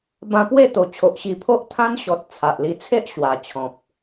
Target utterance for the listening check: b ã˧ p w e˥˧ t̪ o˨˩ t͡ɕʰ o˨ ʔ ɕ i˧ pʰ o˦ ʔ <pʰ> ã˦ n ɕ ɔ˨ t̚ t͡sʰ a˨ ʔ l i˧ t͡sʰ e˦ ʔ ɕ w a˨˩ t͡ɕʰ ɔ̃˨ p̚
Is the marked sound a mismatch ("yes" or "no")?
yes